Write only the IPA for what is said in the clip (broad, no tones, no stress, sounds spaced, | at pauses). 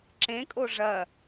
ǁ ẽ kʼ o ʐ ɐ